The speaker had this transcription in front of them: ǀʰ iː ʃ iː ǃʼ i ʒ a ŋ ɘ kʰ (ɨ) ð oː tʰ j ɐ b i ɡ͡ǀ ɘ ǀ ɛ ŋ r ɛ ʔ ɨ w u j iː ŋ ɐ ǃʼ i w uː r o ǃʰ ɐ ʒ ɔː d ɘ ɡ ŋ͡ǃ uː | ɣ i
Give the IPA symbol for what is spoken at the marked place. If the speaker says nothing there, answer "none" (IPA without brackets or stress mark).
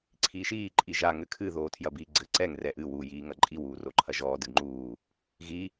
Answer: ɨ